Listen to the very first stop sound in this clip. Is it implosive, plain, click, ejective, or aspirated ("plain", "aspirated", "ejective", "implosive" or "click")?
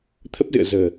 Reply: aspirated